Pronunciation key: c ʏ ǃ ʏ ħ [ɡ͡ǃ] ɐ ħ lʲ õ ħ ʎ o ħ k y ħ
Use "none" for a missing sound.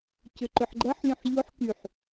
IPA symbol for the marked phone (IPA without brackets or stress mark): ɡ͡ǃ